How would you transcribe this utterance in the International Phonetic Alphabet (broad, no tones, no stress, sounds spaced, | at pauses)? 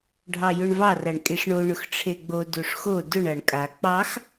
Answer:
ɖʱ ɑ j ʊ ɳ v ɑ r a ɳ kʼ e ʂ ɳ o ɳ ʊ x ʈ͡ʂʰ e ɡ͡b o d o ʂ x o d ʊ ɳ a ɳ kʼ a k͡p ɑ x